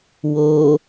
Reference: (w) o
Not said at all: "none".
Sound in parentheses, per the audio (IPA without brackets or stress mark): w